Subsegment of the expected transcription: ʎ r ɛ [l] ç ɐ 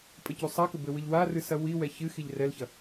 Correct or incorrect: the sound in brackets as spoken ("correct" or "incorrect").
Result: correct